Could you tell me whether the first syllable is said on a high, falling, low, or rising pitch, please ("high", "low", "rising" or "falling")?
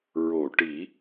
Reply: low